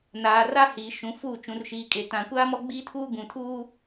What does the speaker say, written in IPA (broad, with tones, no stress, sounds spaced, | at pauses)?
n aː˨ r a˦ h iː˨ ʃ ũ˨ f uː˦˨ t͡ʃ ũ˨ r ʃ iː˨ kʼ e˨ t ã˨ kʷ aː˦ m ɔ˦ ɡ͡b iː˦ tʰ uː˦ ɡ ũ˨ tʰ uː˦